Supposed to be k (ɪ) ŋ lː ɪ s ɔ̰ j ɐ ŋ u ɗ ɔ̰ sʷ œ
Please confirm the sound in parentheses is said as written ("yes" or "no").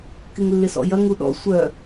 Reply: yes